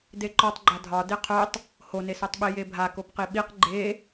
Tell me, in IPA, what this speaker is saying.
d e ǃ ɔ tˤ ɡ͡ǃ a dʱ ɒ d e qʰ o tˤ | h o n e s o tˤ ɓ i j e bʱ a k o p q i ɓ i q ɡ͡ǃ e

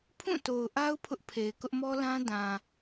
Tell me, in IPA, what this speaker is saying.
pʰ ũ˦˨ t o˨ ʊ̯ ʔ a˦ ʊ̯ pʰ ʊ˦ ʔ pʰ e˨ ɪ̯ k ʊ˦ ʔ m ɔ˦ l ã˦ d ã˨

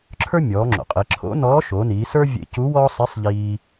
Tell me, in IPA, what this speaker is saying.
ǁʰ ə˞˥ mʲ ɔː˩˧ ŋ͡ǁ o̰˩ qʼ e˩˧ ǁʰ o̰˧˥ n ɔː˧˥ ʃ o˩˧ n iː˩˧ s ə˞˥ vʲ ḛ˧˥ c u˧˥ w ɔː˥ sˤ i˧˥ sˤ ʎ iː˧

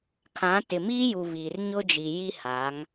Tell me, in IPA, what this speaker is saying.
kʰ ã˨˦ t ɪ˨ m iː˦ j u˨ β iː˨ r ɲ ʊ˦ d͡ʒ i˨ j i˦ h a˨˦ ŋ

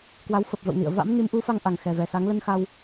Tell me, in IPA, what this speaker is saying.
k w a˨˦ w f ə˨˩ p̚ v ə̰˧˨ w n ḭ˧˨ ə̯ v a̰˧˥ m n i˨˦ m ʔ u˨˦ f a˧ ŋ ʔ a˨˩ ŋ x ɛ˨˩ v ɛ˨˩ s a˨˦ ŋ l ə˧ n x a˧ w

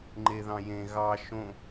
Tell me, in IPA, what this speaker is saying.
ŋ͡ǃ e ð ɑ̃ j ẽ ɣ ɑ ʃ õ

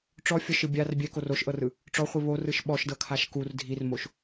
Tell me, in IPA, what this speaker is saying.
ʈ͡ʂ ɔ fʲ ɔ ʃ ɯ bʲ a r bʲ ɛ k o r o ʃ ʔ ɤ r ɯ | ʈ͡ʂ ɔ χʷ i β o r ɯ ʃ ɓ ɔ ʃ d ɤ kʰ a ʃ k u r dʱ i r m o ʃ

